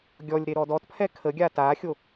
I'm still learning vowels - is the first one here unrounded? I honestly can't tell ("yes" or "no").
no